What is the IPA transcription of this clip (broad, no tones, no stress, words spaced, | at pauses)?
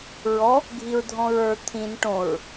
ɹɔ | ɡʱiɹdʱɔ̃ɹə˞ t̪ʰĩn ʈõɹ